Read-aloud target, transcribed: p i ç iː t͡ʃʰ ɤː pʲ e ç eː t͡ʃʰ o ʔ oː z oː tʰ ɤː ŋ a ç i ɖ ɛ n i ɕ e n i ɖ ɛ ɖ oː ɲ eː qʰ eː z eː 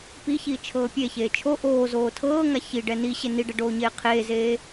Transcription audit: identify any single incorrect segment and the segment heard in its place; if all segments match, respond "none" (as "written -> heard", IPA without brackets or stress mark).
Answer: none